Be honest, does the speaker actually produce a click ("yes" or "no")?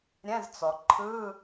yes